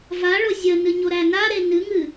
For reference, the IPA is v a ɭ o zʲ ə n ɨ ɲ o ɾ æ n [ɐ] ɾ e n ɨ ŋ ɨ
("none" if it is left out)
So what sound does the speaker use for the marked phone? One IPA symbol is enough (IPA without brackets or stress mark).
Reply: a